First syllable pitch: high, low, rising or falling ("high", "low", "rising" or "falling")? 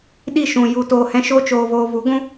falling